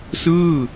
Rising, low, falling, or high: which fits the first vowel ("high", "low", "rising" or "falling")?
falling